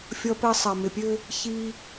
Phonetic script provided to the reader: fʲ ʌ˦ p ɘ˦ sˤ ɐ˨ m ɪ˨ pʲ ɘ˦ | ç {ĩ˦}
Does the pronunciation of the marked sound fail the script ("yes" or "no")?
yes